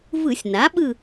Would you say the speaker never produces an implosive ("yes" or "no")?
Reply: no